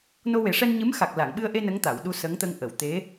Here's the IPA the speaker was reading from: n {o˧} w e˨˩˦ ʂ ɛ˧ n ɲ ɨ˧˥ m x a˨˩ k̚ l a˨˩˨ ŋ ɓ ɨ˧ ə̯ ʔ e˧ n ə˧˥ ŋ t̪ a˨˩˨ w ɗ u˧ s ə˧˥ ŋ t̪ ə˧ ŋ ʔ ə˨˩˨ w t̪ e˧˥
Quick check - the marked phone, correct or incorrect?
correct